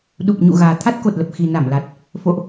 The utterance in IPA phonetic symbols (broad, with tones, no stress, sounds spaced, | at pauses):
ɗ u˨˩ p̚ ɲ ṵ˧˨ ɣ aː˨˩ t̪ʰ a˦˥ t̚ k o˨˩ t̚ l ə˨˩ p̚ x i˨˩ n a˧˩ m l a˨˩ t̚ | f o̰˧˨ ʔ